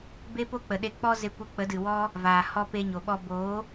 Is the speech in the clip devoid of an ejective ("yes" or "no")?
yes